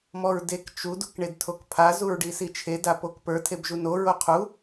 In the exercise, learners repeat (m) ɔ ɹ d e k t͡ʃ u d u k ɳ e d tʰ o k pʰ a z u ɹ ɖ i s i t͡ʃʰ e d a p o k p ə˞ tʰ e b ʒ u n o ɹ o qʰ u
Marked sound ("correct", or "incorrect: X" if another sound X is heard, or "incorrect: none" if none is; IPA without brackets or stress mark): correct